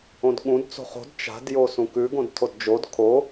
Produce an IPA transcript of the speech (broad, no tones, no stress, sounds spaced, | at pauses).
õ d ɠ ũ d t͡s o̤ χ o̤ d t͡ʃ a̤ d j o s ũ k ʉ ɡ õ d tʰ o d d͡ʒ o d kʰ o